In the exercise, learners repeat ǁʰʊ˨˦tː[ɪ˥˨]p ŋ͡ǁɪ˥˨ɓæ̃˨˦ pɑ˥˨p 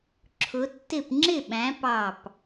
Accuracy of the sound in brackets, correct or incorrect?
correct